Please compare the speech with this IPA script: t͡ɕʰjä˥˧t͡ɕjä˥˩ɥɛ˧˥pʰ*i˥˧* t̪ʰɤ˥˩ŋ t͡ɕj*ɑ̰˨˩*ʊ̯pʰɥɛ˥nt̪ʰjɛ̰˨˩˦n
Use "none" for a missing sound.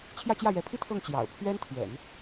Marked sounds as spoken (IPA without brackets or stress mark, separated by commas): i˥, ɑ̰˨˩